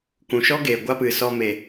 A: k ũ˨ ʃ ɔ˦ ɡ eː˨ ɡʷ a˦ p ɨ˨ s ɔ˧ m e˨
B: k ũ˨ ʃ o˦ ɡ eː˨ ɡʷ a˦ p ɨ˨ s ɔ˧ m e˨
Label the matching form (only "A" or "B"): A